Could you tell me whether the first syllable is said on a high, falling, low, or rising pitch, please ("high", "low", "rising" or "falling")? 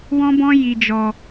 high